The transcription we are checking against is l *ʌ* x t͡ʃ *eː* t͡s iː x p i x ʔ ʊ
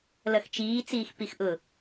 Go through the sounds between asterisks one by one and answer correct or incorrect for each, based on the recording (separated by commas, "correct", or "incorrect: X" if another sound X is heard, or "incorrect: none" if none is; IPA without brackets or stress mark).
correct, incorrect: iː